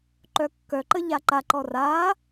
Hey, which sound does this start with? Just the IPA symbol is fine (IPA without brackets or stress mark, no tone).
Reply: ǃ